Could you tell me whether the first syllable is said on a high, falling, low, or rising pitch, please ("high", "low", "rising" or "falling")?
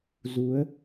rising